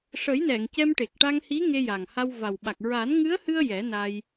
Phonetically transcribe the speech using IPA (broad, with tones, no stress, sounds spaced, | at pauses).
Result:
ʂ ə˨˩˦ j n ɛ˨˩˨ ŋ c ɛ˧ m ʈ e˨˩ k̚ ʈ a˧ ŋ h i˧˥ ŋ e˧ j a˨˩ ŋ h a˧ w v a˨˩ w ɓ a˨˩ k̚ ɹ a˨˩˦ n ŋ ɨ˧˥ ə̯ h ɨ˧ ə̯ j ɛ˨˩˦ n a˧ j